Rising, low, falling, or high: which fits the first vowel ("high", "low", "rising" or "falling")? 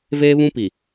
high